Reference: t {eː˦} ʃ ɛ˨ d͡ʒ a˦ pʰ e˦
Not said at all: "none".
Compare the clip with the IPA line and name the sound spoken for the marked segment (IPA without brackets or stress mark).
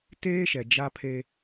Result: eː˦